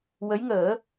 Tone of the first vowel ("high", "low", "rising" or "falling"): rising